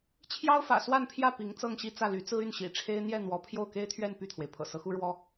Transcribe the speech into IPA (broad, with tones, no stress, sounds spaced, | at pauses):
t͡ɕʰ j ɑ˥ ʊ̯ f ä̰˨˩ s w a˥˧ n pʰ j ä˥˩ p i˧˥ ŋ t͡s ɤ˥˧ ŋ ɕ i˥˧ t͡s ä˥˩ l y˧˥ t͡s ɹ̩˥ y˥˩ n ɕ ḭ˨˩ ʈ͡ʂʰ e˥ ɪ̯ n̪ j ɛ˥˩ n̪ w ɔ˧˥ pʰ j o˥˩ ʊ̯ k e˥ ɪ̯ t̪ʰ ɥ ɛ˥˧ n p y˥˩ t̪ʰ w e˩ ɪ̯ pʰ ɤ̰˨˩ s ɤ˧˥ x u˥ ɻ w ɔ˥